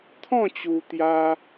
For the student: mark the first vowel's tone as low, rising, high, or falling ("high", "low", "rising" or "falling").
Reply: falling